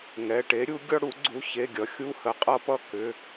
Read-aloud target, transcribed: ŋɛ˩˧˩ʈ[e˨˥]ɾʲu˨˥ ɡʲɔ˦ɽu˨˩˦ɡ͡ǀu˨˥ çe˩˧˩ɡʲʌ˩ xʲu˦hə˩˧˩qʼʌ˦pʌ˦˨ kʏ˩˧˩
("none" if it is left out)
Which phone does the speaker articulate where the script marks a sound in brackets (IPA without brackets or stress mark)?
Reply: e˨˥